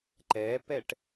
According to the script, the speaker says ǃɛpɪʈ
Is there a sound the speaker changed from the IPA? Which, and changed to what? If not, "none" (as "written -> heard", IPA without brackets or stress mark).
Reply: ɪ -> ɛ